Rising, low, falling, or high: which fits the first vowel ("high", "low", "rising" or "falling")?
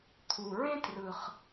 low